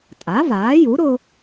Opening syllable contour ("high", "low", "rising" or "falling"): rising